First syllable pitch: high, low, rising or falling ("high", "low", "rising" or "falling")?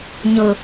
low